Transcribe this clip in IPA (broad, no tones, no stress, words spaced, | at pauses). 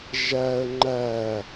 ʒæə̯ ŋ͡ǃæ